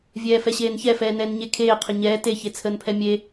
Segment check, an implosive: absent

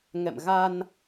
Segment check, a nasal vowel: absent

